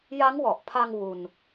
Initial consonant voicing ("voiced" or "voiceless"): voiced